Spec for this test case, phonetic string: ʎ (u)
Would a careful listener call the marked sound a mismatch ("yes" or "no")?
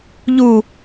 no